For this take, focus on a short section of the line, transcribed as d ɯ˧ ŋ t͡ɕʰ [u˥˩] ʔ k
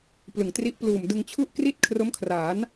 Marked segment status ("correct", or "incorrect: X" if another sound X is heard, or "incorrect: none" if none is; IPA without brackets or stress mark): correct